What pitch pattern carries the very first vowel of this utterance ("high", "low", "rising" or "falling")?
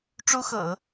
high